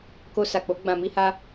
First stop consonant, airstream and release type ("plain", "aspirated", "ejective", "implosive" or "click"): plain